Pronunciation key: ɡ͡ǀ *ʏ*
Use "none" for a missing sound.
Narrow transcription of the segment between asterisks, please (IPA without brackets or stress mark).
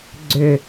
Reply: ʏ